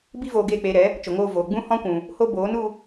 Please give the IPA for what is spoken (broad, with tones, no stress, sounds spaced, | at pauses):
b i˦ v oː˧ ɡ eː˦˨ k͡p eː˧ ɾ ɛ˨˦ | t͡ʃ o˨ ŋ oː˧ v oː˨ ɡ͡b ũ˦ h ɔ̃˦ kʷ ũ˨ | h o˦ b oː˨˦ n u˧